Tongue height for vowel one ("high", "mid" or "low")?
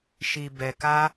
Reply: high